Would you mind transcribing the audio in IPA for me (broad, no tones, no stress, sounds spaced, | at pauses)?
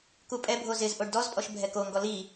k u pʼ ɛ bʱ o z ɪ z ʔ o ɖ d ɔ z pʼ ɔ ʃ bʱ ɛ k o ŋ ɡ ɔ l i